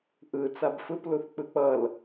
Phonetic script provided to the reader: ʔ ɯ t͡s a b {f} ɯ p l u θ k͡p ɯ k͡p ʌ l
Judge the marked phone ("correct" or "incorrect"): correct